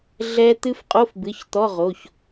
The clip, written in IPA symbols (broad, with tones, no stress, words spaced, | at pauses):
ɮɛ˦˥ t̪ɨ˦˥fqʼo˧˥˧fbɨ˩˧˩ç t̪ɔ˧˥˧ʁo˩˧˩ç